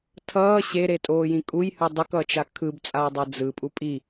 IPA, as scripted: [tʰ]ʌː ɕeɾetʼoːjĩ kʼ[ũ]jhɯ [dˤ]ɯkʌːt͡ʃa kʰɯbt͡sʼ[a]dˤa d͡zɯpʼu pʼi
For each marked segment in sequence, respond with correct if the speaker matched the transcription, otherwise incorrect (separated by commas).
correct, incorrect, correct, incorrect